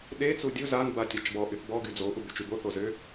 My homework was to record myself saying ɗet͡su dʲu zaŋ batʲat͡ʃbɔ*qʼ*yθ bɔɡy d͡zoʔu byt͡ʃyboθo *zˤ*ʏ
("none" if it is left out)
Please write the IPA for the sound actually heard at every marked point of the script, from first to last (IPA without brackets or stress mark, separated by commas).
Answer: ʔ, z